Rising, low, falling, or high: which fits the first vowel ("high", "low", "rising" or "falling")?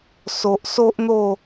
low